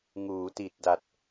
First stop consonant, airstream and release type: plain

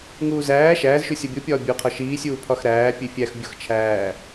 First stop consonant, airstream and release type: plain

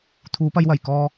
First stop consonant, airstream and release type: aspirated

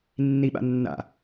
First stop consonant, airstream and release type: implosive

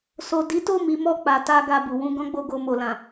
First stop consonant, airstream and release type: plain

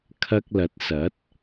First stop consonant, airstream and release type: aspirated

